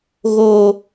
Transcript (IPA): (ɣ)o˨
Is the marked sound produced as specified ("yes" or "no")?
yes